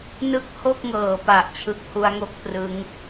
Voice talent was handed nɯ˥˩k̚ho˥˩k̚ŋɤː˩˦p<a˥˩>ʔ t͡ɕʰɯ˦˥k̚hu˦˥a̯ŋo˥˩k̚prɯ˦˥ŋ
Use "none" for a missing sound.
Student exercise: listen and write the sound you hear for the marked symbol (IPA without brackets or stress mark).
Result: a˨˩